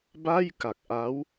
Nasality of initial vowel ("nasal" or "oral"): oral